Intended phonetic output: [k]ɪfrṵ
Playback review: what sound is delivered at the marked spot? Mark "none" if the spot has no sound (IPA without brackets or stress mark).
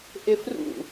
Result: ʔ